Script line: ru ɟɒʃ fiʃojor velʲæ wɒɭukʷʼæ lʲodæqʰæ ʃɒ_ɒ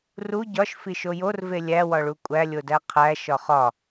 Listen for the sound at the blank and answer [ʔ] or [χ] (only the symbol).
χ